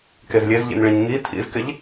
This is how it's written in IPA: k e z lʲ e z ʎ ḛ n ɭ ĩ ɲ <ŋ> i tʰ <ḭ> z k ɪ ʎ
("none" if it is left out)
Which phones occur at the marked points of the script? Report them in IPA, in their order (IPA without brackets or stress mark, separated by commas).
ŋ, ḭ